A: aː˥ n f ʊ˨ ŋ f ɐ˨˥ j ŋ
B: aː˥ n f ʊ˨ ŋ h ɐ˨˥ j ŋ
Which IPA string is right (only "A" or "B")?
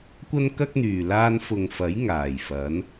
A